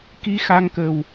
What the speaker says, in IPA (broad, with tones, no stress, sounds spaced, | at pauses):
k i˧ x a˧ ŋ k ə˨˩ w